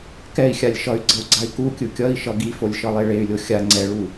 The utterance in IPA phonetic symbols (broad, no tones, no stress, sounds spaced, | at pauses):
k ɛ i̯ xʲ a lʲ ʃ ʌ y̯ ɡ͡ǀ ʌ u̯ ɡ͡ǀ a i̯ k u kʲ ɯ kʲ ʌ i̯ ʃ ʌ ɡ i f o lʲ ʃ ʌ lˠ e ɭ e y̯ lʲ o xʲ a ŋ͡ǀ ɛ ɭ u